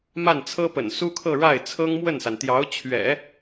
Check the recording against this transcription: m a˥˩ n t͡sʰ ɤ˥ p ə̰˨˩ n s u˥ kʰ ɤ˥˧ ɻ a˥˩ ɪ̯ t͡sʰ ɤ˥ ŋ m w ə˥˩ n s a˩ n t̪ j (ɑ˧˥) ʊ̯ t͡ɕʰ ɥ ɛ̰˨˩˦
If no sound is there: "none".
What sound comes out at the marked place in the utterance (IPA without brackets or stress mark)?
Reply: ɑ˧˥